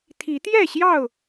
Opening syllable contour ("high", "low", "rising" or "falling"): rising